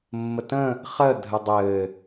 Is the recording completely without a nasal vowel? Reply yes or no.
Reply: no